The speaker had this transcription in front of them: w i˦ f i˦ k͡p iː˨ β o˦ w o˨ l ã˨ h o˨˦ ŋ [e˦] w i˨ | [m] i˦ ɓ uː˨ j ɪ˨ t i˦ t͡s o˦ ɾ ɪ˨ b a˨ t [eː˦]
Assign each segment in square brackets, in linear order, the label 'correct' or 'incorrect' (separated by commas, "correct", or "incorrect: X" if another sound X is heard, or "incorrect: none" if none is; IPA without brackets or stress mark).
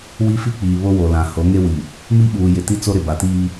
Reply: correct, correct, incorrect: iː˦